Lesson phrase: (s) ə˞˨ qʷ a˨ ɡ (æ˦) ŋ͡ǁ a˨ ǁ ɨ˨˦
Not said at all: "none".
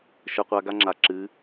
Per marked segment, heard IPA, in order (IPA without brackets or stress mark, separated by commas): ʃ, a˦